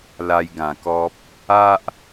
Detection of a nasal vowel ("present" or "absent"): present